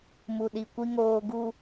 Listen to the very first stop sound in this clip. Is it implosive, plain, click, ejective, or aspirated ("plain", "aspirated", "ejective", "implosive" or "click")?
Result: implosive